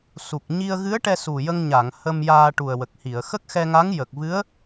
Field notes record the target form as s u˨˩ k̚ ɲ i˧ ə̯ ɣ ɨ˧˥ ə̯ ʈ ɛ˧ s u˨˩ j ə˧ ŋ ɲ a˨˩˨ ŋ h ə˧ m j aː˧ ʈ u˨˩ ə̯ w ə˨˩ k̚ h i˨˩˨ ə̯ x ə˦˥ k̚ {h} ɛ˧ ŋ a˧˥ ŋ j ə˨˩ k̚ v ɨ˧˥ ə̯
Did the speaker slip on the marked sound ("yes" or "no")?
yes